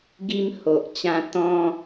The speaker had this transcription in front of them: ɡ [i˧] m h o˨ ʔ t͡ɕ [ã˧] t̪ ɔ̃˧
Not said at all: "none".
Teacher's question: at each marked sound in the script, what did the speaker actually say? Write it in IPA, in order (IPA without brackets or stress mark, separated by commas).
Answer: i˧, ã˧